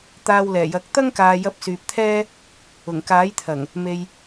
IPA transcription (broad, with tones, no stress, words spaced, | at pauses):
t̪aː˧wlɛː˨˩jɐ˨˥k̚ t̪ɐ˥ŋ kaː˧ jɐ˧p̚syː˨p̚t̪ʰɛː˥ | ʊ˨˩ŋkaː˨˥jt̪ʰɐ˨˩ŋ | me˧j